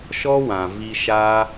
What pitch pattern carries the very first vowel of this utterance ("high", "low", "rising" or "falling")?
high